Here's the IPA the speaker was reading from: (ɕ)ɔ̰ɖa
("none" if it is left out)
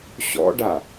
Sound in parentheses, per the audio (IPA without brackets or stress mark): ɕ